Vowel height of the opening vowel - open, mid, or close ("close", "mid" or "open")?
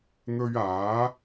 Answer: mid